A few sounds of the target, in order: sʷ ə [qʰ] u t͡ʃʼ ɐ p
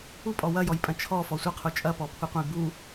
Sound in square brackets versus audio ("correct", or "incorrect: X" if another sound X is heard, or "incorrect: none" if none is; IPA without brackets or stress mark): correct